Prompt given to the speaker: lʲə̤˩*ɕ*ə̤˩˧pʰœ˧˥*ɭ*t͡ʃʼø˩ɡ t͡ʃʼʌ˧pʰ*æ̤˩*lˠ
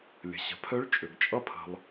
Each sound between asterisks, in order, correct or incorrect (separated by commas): correct, correct, incorrect